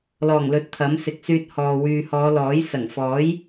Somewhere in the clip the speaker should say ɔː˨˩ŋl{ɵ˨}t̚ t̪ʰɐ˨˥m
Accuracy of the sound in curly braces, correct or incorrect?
incorrect